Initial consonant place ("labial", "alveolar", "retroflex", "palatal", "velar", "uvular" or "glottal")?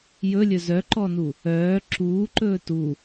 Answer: palatal